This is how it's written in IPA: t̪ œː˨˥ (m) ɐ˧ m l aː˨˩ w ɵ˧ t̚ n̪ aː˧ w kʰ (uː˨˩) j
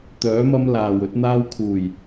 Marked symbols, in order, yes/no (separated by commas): yes, yes